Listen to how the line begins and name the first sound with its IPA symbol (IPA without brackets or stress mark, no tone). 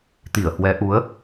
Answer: t̪